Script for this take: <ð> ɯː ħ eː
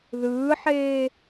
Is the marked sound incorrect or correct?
correct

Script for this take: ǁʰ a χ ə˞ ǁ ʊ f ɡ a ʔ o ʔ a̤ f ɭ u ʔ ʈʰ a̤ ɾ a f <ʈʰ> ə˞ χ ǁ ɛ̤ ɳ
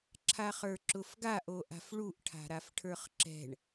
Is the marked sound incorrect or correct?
correct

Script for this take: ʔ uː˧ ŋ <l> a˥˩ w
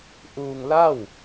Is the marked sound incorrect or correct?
correct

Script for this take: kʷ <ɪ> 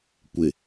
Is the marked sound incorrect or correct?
correct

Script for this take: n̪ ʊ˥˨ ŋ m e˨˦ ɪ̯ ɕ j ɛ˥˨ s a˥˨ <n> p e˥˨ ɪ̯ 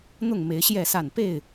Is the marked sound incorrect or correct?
correct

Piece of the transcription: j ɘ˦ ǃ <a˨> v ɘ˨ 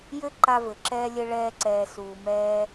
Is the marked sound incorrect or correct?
incorrect: a˧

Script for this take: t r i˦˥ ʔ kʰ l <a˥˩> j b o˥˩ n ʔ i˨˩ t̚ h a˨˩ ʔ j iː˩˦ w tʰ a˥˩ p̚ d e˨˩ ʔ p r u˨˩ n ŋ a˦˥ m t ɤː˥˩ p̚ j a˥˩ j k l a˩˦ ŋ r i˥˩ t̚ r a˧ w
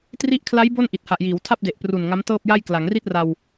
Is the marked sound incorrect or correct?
incorrect: a˦˥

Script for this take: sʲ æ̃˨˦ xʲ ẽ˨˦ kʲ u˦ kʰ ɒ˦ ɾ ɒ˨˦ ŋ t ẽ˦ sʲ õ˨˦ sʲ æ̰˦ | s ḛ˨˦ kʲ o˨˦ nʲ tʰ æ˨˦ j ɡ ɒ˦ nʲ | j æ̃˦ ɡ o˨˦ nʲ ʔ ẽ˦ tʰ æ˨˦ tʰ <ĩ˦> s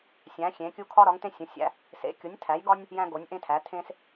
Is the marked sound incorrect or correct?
incorrect: ẽ˦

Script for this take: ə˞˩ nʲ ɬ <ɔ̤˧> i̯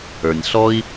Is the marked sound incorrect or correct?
incorrect: ɔ˧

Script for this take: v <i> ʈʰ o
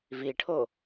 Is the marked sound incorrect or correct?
correct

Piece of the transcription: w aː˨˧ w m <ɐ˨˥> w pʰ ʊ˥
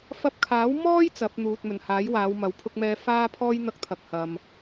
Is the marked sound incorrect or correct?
correct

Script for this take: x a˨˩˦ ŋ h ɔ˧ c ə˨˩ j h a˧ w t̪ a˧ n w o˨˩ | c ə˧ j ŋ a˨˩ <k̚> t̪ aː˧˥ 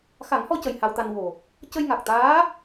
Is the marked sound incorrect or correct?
correct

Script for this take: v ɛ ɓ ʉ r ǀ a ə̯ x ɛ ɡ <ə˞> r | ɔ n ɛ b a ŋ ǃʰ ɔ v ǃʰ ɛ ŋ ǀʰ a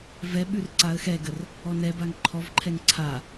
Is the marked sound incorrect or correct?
incorrect: ə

